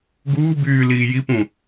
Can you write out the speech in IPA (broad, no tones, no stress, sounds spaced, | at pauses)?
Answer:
ɡ uː b yː l iː j i p ũ